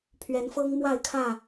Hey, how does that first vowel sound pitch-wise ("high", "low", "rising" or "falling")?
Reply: rising